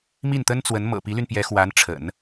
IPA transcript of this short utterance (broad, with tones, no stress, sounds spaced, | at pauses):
m i˥˩ n t̪ ə˥ n t͡s w ə˧˥ n m ɤ̰˨˩ p i˧˥ l y˧ n p j ɛ˧˥ x w a˧˥ n ʈ͡ʂʰ ə̰˨˩˦ n